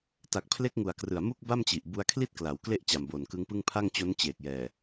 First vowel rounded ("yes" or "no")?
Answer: no